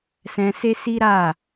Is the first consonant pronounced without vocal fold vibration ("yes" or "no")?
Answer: yes